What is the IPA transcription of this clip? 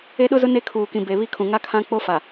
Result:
e˦ɗʊ˦zʊ˦ ne˦kʰuː˨kĩ˨ be˨ βi˦kʰũ˨ ŋa˦kʰã˦k͡po˦fa˨

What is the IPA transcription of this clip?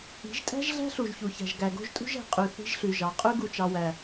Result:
i̤˨˦ʒtʼæ̤˦ʒɮæ̤˦ ɬu˨ʒçu˨çæ̤˨ʒ ɡæ˨ɡo̤˦ʒtʼṳ˦ʒ æ̤˨qʼʉ˨ θi̤˦ʒɬʉ˨ʒɑ˨ qʼʉ˦ɡu˨t͡ʃɑ˨wæ˨

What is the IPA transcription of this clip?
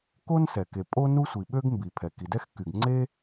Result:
ko˥nsɛ˩ ke˩pʼo˥nu˥sʷi˩ ɓø˥ɡ mbi˩pʰɛ˩ ki˩dɛ˥xky˩ɡ ŋ͡ǀe˥

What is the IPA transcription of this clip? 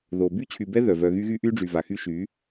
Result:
ðo˨ by˦t͡ɕʰy˨bɛ˦ ðœ˨ vœ˨ ɣy˦ɣy˦ ʔy˦ɖ͡ʐy˨va˨xy˦ ʃy˨˦

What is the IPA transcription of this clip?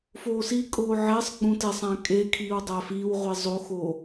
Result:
foːsikʼoː ʕesˤ ɡ͡bũtesˤæ̃ kʼe kʰiːwdˤæfiːwʁʷi zˤoxo

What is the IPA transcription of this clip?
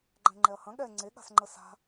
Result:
ɡ͡ǃɛ̃ŋ͡ǃɛɐ̯hɐ̃ ɠɛ ŋ͡ǀeɠa̤sŋ͡ǃə sa̤

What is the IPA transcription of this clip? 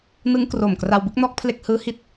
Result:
nɯ˦˥ŋkro˨˩mkra˧w bɯ˥˩k̚nɔː˦˥k̚pʰle˦˥k̚hɯː˦˥ hi˥˩t̚

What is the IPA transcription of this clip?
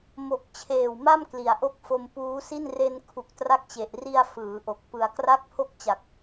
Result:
mo˨˩k̚ t͡ɕʰeː˨˩wma˥˩m kli˩˦a̯ʔo˦˥k̚ fo˧mpuː˦˥si˥˩n re˧n kʰu˨˩k̚tra˦˥k̚t͡ɕe˨˩ʔ ri˧a̯ fɯː˩˦ʔo˨˩k̚ pɯ˩˦a̯kra˥˩k̚pʰo˥˩k̚ t͡ɕa˨˩k̚

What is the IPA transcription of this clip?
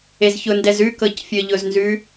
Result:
ezçʊndɛz ʉkɤc fʲɤʎʊznzʉ

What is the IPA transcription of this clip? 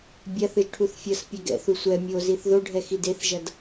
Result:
bʲaθɯʒʈʰuθ fʲʌspʲɛ ɡɛ̰θu sʷɛ mʲoziθ ðoɖʱɛxi deθʒʌd

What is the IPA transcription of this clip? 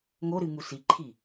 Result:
ŋoɾɨ ŋusiǃʰi

